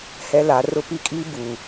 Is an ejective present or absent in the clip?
present